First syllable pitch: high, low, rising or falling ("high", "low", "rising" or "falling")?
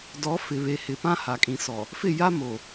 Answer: rising